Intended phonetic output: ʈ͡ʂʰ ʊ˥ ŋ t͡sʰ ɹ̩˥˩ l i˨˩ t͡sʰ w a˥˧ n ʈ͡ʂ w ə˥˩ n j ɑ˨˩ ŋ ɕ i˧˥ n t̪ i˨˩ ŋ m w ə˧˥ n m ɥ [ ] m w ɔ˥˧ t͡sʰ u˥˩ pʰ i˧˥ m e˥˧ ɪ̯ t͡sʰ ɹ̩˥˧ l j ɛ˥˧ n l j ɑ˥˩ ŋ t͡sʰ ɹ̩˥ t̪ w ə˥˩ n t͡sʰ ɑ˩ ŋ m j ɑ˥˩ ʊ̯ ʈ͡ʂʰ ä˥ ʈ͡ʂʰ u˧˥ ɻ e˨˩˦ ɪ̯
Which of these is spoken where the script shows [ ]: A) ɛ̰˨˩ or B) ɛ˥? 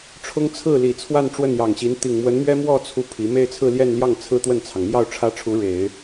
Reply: B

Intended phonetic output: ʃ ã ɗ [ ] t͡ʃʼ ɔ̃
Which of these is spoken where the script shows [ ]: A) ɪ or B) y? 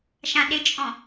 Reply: A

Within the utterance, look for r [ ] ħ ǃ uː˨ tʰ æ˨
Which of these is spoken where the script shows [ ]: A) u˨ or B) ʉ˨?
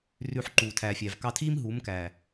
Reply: B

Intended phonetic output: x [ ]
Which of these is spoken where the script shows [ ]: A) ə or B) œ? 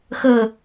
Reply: A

